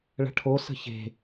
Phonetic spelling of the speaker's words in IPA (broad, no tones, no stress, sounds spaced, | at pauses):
ɭ ə̤ ʈʰ o s ə̤ ç e̤